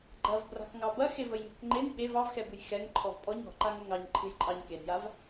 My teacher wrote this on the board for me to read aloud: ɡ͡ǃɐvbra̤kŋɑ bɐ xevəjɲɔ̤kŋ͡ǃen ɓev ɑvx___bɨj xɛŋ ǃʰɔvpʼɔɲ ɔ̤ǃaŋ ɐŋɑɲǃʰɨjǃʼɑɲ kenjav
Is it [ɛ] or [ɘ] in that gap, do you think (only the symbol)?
ɛ